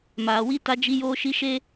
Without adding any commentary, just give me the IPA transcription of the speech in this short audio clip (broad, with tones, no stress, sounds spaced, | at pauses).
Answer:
m aː˨ w i˦ t a˦ d͡ʒ i˦ j oː˦ ʃ i˦ ʃ e˦